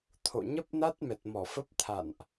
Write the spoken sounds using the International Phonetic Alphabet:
t̪ʰo̰˧˨ɲə˦˥p̚ na˦˥t̚mɛ˨˩t̚mɔ˧˩ fə˦˥p̚t̪ʰa̰˧˨nʔ

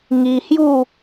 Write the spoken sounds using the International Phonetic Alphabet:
ŋi˧hju˥˧

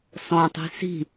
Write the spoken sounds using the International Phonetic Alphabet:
sɔ̃tˤi̤ si̤

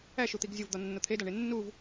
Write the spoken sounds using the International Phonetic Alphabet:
æʃut̪iɡ zʲovd̪ɒnːo t̪ʰedɒɳe nːuv

